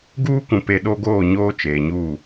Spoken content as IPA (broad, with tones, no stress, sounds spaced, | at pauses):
ɡ uː˦ kʷ ũ˨ p e˨ ɗ o˦ ɡ oː˦˨ ɲ oː˦ t͡ʃ eː˨ ɲ uː˦˨